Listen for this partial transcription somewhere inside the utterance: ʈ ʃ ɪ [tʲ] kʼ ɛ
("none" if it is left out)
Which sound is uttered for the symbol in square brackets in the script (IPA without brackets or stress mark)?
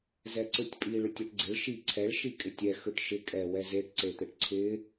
none